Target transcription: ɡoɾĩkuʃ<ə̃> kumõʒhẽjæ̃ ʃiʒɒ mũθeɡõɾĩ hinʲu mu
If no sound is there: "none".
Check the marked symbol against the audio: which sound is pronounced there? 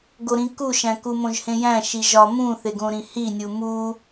æ̃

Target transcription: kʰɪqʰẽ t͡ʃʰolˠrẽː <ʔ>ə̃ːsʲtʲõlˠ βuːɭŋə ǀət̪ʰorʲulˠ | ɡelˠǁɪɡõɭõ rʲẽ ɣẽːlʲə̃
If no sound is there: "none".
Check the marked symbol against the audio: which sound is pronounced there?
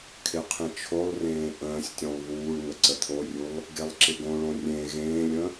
ʔ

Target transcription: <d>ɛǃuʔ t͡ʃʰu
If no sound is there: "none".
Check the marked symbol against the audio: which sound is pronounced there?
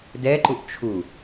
d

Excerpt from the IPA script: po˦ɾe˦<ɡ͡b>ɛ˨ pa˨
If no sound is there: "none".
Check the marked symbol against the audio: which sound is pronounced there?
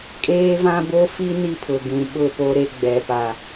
ɡ͡b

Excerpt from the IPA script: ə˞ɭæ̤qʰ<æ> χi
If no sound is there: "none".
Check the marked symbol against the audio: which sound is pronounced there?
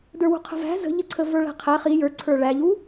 æ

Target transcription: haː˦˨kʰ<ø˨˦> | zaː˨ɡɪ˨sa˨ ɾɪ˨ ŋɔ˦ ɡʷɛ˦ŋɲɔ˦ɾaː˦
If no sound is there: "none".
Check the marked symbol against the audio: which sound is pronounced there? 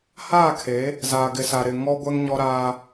e˨˦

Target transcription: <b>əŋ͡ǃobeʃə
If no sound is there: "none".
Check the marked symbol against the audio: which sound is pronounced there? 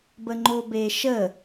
b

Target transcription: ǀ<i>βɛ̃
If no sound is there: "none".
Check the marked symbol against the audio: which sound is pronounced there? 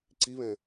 i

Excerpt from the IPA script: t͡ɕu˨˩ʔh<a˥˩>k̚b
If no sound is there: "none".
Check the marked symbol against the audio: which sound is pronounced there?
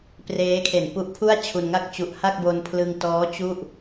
a˥˩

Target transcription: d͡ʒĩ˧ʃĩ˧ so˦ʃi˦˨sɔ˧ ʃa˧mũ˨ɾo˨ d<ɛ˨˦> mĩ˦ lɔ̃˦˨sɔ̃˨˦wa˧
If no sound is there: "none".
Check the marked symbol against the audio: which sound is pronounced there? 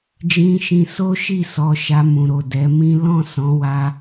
ɛ˨˦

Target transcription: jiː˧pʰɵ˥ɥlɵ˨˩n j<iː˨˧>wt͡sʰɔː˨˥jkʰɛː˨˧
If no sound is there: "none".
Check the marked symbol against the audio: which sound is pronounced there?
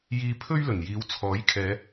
iː˨˧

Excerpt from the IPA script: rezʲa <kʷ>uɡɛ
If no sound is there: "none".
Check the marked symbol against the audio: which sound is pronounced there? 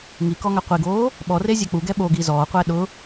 k͡p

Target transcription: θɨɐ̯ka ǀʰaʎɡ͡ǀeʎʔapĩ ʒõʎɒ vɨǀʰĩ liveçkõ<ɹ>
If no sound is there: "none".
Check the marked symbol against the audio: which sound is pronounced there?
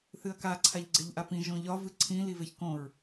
ɹ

